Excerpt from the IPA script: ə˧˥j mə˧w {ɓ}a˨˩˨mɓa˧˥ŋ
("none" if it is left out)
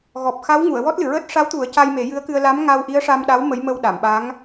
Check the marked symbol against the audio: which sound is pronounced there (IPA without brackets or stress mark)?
ɗ